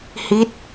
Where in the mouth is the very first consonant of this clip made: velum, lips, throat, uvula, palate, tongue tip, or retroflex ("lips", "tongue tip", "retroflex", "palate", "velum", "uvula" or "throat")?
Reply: throat